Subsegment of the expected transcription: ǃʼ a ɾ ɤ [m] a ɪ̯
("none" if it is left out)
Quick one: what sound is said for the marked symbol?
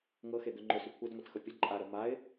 m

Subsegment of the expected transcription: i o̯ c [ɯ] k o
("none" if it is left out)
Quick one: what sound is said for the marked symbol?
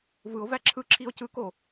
ɯ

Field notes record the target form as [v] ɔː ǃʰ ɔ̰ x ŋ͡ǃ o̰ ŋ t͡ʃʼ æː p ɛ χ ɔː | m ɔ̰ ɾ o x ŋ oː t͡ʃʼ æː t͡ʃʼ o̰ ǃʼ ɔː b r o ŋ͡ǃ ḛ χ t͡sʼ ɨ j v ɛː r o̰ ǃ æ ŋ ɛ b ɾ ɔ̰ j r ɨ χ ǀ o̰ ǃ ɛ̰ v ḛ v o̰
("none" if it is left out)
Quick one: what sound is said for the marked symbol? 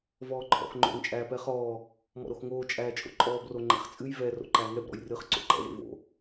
v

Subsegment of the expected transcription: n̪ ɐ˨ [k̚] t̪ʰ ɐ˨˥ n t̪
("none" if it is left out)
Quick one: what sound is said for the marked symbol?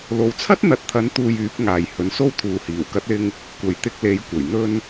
t̚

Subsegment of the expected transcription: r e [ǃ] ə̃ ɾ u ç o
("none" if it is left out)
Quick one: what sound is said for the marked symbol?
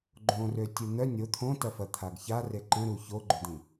ǃ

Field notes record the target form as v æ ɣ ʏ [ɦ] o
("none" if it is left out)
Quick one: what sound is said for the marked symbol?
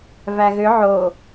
ʕ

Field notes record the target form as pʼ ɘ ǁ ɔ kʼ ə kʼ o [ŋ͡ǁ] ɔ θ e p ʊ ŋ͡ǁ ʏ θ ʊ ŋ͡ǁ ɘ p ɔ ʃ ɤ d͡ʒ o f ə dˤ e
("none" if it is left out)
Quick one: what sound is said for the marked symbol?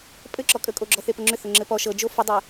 ɡ͡ǁ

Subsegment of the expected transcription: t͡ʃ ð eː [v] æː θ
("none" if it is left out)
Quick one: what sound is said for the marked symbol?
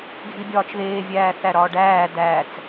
vʲ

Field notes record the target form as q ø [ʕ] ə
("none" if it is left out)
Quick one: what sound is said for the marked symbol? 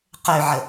ʕ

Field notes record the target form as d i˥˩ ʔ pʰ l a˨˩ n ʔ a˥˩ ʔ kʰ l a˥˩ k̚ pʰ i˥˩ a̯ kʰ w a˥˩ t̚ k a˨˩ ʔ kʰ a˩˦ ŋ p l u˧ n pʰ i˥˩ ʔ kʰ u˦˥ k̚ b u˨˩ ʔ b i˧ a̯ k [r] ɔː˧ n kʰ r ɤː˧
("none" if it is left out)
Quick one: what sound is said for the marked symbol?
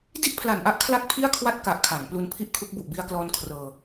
l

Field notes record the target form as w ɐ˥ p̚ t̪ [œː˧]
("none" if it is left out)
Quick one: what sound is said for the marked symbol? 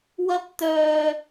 œː˧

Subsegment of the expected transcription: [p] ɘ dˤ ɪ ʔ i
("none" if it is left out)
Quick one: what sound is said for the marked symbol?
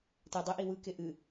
t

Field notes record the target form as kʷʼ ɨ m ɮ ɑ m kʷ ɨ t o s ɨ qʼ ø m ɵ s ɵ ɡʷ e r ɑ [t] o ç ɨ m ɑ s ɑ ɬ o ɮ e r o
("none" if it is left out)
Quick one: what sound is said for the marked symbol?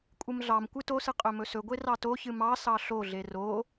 t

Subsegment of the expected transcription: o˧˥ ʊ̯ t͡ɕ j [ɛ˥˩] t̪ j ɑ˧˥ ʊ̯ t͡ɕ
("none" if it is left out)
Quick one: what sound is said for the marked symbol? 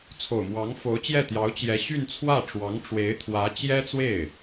ɛ˥˩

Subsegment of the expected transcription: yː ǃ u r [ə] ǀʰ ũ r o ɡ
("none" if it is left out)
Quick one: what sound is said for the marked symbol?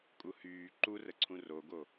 ə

